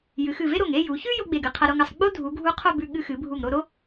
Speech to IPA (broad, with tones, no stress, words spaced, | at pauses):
jɨ˩˧xɨ˧˩ve˥ɾo˧˩ŋ e˥˧ju˩˧çʉ˥ jo˥ɡ͡be˧˩ɡ ɨ˧qʰɐ˧ɾo˧ŋɐ˩˧sˤ ɡ͡bo˥dʱu˩˧ɡʱu˧ qʰo˥˧bʉ˧ ɠɨ˧xɨ˩˧bʱu˧˩ŋ ɾo˥˧ ɾo˥